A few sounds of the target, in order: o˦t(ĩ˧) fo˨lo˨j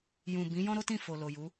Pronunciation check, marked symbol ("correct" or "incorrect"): incorrect